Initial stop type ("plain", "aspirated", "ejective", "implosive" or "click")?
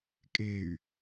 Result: ejective